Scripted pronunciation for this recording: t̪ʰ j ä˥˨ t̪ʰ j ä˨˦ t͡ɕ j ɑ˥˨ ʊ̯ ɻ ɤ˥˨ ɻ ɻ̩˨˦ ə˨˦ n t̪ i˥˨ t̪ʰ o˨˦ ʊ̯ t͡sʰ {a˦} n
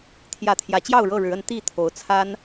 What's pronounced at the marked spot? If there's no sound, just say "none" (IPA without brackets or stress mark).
a˦